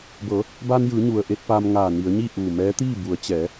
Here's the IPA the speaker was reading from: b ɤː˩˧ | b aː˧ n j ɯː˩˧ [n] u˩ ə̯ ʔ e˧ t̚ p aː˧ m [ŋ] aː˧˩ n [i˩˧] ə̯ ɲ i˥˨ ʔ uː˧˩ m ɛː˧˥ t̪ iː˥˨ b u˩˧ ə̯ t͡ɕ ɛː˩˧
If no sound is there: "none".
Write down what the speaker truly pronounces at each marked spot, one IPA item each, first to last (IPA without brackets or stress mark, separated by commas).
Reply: ɲ, ŋ, i˩˧